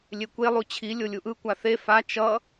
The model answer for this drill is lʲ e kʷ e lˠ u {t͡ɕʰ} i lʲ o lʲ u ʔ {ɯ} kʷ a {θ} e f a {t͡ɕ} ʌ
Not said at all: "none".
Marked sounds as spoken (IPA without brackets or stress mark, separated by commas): t͡ɕʰ, ɯ, θ, t͡ʃ